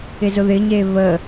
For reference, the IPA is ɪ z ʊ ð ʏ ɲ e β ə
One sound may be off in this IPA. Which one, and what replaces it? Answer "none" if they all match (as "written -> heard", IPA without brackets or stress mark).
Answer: ʏ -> ɪ